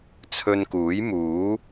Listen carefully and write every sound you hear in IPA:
t͡sʰ ɵ˧ n k uː˨˥ j m uː˨˥

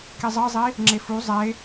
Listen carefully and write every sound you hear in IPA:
k i zˤ ɯ zˤ i | ŋ͡ǁ e f u zˤ e

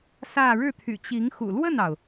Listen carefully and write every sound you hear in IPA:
s ä˥˧ ɻ ɻ̩˥˩ t̪ʰ y̰˨˩ t͡ɕ i˧˥ ŋ x ṵ˨˩ l w ə˥˩ n ɑ˩ ʊ̯

